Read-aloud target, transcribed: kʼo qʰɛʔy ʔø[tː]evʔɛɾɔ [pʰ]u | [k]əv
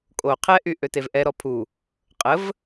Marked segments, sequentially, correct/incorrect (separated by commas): incorrect, correct, incorrect